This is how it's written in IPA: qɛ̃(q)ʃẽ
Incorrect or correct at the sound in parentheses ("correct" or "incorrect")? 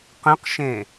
correct